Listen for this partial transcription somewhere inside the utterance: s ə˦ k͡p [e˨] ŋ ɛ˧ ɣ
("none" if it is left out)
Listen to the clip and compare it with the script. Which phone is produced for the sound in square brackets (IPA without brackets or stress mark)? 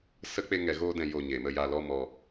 e˦